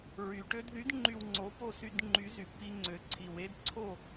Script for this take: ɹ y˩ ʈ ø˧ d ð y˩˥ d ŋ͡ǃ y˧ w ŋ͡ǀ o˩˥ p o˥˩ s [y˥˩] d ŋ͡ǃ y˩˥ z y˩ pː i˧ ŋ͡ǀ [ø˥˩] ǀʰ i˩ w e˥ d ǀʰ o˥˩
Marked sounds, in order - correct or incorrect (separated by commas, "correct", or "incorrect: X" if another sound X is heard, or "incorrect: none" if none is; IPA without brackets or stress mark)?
incorrect: y˧, incorrect: ø˩